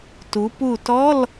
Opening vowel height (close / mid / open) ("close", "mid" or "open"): close